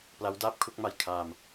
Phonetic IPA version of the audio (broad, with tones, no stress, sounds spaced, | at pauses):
p l a˦˥ w d aː˥˩ p̚ kʰ u˥˩ k̚ m a˧ j kʰ aː˧ m